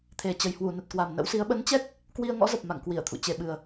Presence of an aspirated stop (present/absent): present